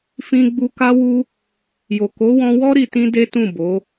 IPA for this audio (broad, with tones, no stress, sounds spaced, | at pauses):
f ĩ˧ ɡ͡b u˧ k a˦ w u˦ | j o˨ k o˨˦ w ɔ̃˧ w ɔ˦ ɾ i˧ t ĩ˦ d e˦ t ũ˦˨ b o˨˦